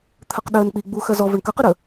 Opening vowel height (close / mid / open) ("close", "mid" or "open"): mid